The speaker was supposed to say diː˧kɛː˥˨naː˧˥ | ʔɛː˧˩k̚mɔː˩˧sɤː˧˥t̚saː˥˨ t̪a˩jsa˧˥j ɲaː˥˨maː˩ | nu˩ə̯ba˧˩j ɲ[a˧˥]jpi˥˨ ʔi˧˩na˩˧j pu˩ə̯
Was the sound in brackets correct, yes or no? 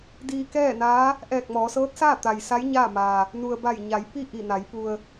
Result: no